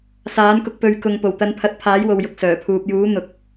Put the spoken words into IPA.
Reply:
s aː˨˥ n k ʊ˧ k̚ p ɵ˨ ɥ k ʊ˨ ŋ p o˨˩ w t̪ ɐ˨˧ n pʰ ɐ˨ t̚ pʰ aː˨˥ j w o˨ w j ʊ˨ k̚ s œː˨˩ pʰ uː˨ p̚ j uː˨˥ n̪ ʊ˨ k̚

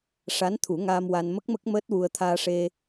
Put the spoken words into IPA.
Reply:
ʂ a˧˥ n t̪ʰ u˨˩˦ ŋ aː˧ m w a˧ n m ə˦˥ k̚ m ə˦˥ k̚ m əː˦˥ t̚ w u˧ ə̯ t̪ʰ aː˧ ʂ e˧

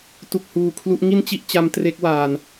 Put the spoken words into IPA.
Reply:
t u˨˩ k̚ h uː˨˩ kʰ l u˦˥ ʔ ŋ i˥˩ n t͡ɕ i˥˩ ʔ t͡ɕ a˦˥ m t r e˦˥ k̚ w aː˧ n

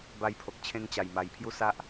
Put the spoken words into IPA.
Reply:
b a˧ j pʰ o˨ k̚ t͡ɕʰ ẽ˧ ŋ t͡ɕ a˨˩ j m a˨˩ j pʰ j u˦ s a˦ ʔ

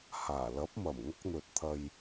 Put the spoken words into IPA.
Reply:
h aː˨˩ l ɐ˨˥ p̚ m ɐ˨˩ m ŋ ɐ˥ k̚ n̪ ɵ˨ t̚ t̪ʰ ɐ˨ j

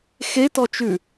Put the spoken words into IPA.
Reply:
x e t ɔ t͡ʃ ʉ

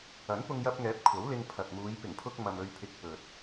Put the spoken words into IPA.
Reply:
ɐ˨˥ n p ʊ˧ ŋ j ɐ˧ p̚ ŋ ɛː˨˥ p̚ kʷʰ ɐ˨˥ w l ɪ˧ ŋ pʰ ɐ˨ t̚ m uː˨˧ j p ɪ˨˩ ŋ pʰ ʊ˧ k̚ m ɐ˨ m ɵ˧ ɥ pʰ ɪ˧ k̚ p ɵ˨ t̚

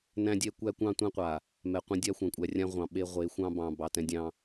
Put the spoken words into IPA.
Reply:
n æ̃˦ dʲ ɛ˦ kʷ æ˦ kʷ ɑ̃˦ tʷ ɛ̃˦ qʷ a˨ | m ɛ˨ qʷ ẽ˦ dʲ a˦ xʷ ã˨ kʷʼ æ˨ rʲ ã˦ ʁʷ ɑ̃˨ ɓ e˦ ʁʷ e˨˦ xʷ ɑ̃˦ b ɑ̃˨ b ɑ˨ t ɛ̃˦ dʲ ɑ̃˦

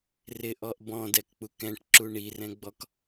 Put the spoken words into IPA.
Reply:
r ɪ ʔ ɔ ʔ b ɔ̃ d ɛ k k͡p u k ɛ̃ ʈ ǁ u ɳ i r ɛ̃ ɡ͡b ɔ k

